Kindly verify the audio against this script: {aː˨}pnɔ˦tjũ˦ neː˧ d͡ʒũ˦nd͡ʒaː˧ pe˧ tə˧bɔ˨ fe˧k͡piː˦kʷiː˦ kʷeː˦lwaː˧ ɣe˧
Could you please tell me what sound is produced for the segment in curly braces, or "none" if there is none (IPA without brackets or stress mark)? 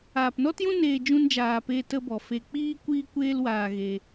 aː˨